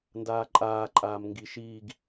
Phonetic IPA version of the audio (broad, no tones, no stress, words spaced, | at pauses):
ndaːǃʼaːǃʼaːm ŋɡiʃiːɡ